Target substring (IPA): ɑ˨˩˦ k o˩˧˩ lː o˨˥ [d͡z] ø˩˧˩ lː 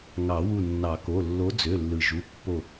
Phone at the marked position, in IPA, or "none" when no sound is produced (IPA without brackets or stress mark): d͡z